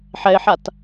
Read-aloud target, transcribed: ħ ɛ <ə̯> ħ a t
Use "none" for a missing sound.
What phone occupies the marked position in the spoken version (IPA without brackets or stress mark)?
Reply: ɪ̯